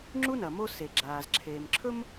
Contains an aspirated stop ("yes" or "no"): yes